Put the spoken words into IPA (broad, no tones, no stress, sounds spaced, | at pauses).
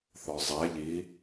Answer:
θ ɔ zˤ ɛ ʎ i